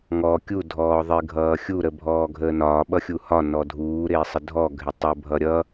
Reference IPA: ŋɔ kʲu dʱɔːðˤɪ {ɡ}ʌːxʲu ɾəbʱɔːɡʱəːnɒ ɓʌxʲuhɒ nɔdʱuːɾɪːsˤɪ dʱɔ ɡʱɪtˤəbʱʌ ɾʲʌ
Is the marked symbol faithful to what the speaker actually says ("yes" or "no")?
no